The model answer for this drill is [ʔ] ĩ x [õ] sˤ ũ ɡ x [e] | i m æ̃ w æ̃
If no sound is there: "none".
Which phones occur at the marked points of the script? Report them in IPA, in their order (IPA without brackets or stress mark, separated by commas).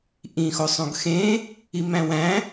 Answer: ʔ, o, ẽ